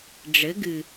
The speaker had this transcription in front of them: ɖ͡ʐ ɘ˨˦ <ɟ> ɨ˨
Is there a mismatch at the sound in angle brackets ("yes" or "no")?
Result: yes